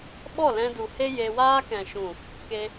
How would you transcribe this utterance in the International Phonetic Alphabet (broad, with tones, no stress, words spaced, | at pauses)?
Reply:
ɓɔ˦˨lɛ̃˧du˨ he˦je˧waː˦ kɛ̃˨ʃũ˨ | ke˦